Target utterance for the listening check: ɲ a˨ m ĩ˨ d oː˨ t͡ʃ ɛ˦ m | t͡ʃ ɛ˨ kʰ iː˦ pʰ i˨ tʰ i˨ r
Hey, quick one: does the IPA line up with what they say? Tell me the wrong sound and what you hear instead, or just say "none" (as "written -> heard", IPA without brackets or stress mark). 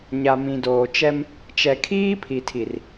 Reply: none